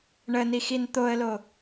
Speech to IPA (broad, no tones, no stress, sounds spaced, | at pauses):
ɳ ə n i x i n t̪ o ə̯ l o